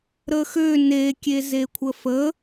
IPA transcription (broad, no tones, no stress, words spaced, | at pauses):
ɾəxø ne kʲezekʷʰəfə